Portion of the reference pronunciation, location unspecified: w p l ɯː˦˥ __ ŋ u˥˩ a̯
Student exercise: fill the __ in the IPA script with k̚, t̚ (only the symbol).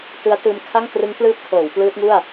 t̚